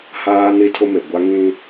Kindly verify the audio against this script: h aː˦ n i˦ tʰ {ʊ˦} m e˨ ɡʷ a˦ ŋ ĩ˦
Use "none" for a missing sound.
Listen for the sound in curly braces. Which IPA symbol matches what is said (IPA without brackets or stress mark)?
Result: ʊ˦